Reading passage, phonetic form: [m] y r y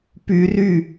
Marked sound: incorrect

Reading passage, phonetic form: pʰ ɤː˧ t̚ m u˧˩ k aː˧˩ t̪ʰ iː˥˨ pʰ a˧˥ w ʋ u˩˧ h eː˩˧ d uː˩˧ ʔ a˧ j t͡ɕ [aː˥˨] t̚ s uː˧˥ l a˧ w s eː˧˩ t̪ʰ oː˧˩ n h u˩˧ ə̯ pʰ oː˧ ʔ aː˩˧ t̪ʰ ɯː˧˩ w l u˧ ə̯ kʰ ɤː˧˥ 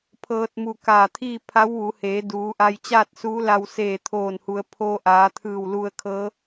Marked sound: correct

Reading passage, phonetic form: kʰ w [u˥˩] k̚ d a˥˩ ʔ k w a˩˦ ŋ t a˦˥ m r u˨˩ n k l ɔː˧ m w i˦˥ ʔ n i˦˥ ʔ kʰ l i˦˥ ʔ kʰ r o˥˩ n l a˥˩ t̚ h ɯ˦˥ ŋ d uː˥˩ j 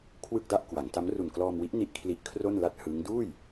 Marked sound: incorrect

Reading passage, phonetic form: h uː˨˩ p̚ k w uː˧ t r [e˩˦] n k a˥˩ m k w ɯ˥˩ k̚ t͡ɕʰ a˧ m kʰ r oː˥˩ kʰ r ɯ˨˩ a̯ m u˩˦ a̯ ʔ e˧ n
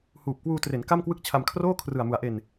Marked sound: correct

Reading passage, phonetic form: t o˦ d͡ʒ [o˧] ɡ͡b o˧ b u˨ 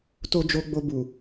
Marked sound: correct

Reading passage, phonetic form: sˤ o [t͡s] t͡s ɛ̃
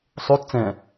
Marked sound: incorrect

